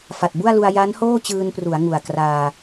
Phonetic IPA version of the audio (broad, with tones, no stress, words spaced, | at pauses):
fa˨˩t̚bu˥˩a̯lu˧a̯ ja˦˥nhoː˥˩t͡ɕɯː˧npru˩˦a̯ ŋu˨˩a̯kraː˧